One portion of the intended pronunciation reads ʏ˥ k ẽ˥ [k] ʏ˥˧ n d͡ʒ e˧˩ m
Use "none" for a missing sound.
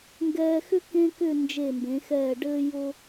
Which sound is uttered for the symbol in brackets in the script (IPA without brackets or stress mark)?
k